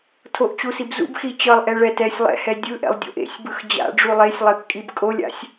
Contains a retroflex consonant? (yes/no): yes